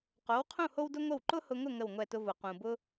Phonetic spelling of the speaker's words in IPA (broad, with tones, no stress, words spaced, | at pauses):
qo˩˥wqʰũ˥˩ ho˥wdʊ˥ ŋʷə˥˩w ǃʊ˥hʊ˧ŋʊ˥˩ ŋə˥˩wŋʷɛ˥˩tʊ˥ vʊ˩ qũ˩ bʊ˥